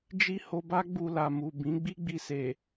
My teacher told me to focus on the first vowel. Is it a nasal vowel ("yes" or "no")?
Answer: no